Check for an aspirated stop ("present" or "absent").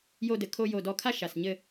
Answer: present